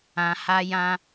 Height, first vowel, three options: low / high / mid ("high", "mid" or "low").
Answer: low